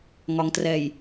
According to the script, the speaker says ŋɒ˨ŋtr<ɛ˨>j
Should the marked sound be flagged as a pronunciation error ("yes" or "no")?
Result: no